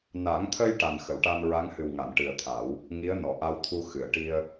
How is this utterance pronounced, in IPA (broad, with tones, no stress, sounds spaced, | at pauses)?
n a˨˩˦ ŋ t̪ʰ ə˧ j ʈ a˨˩ n x ə˨˩˨ w ʈ a˧ n ɹ a˧˥ ŋ h ɨ˨˩ w ŋ a˨˩˨ n ʈ ɨ˨˩ ə̯ t̪ʰ a˨˩˦ w | ŋ i˧˥ ə̯ n ɔ˨˩˨ ʔ a˧ w t̪ʰ u˧ x ɨ˨˩˨ ə̯ ʈ i˧ ə̯